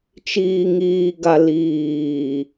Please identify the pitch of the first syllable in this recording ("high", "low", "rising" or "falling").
low